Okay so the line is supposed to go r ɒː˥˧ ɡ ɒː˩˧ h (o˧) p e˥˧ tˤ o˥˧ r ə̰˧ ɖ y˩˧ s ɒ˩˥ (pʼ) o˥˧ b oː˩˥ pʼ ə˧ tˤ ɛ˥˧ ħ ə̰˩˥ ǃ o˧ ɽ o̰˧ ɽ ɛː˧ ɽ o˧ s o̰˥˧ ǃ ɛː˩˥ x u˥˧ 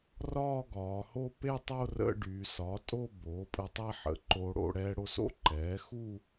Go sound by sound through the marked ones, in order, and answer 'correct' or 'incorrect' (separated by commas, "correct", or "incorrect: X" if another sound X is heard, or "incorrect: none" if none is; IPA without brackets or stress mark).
incorrect: o˥˧, incorrect: tʼ